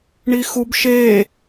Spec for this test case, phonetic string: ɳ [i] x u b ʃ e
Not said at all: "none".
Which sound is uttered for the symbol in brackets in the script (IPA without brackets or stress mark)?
i